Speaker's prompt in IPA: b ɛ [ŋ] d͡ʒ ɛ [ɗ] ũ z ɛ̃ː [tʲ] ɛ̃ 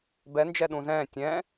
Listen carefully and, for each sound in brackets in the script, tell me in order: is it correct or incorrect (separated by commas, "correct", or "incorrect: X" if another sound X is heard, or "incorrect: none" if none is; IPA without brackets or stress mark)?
incorrect: n, correct, correct